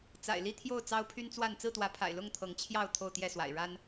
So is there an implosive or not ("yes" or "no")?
no